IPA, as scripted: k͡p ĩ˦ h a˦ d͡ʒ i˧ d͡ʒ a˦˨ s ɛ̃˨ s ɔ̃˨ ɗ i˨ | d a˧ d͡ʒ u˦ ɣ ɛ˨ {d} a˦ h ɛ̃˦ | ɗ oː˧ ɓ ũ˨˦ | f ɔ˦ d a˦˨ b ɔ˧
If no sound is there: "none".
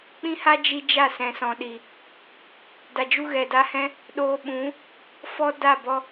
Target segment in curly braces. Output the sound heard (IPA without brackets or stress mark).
d